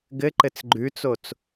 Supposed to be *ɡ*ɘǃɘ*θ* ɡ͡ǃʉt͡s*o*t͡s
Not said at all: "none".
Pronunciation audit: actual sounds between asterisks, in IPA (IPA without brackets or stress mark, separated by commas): ɡ, t͡s, o